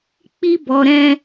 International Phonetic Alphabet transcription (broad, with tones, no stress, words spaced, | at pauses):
k͡pi˦ bɔ˧ɾɛ̃˦